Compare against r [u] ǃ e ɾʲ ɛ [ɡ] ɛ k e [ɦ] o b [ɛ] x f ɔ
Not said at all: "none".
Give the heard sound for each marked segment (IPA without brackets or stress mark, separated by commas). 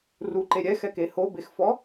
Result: u, x, h, e